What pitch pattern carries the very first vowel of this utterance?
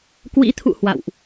rising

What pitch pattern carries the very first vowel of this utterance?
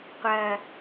low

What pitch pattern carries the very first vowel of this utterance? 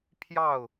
falling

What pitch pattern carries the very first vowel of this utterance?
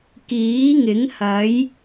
rising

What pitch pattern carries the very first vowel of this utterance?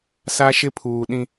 high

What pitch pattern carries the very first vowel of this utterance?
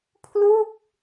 falling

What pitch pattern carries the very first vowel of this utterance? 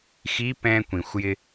rising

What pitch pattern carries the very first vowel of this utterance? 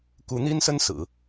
rising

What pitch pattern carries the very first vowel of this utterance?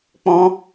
high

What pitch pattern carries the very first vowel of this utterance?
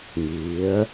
rising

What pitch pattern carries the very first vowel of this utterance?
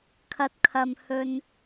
rising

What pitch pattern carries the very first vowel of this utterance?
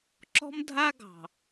high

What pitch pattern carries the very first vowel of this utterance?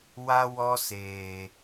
high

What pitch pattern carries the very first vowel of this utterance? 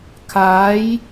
rising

